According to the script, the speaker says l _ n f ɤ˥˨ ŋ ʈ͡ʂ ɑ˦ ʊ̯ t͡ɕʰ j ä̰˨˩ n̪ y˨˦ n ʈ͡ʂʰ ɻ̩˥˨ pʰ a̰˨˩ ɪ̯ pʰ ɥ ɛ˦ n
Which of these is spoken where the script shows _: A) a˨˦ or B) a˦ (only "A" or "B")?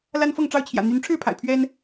B